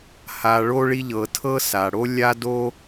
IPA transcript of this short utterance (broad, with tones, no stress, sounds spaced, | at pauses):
h a˧ ɭ o˥ ɭ i˥ ʎ ɤ˧ tʰ ɤ˥ s a˩ ɽ o˥ lʲ a˥ d o˥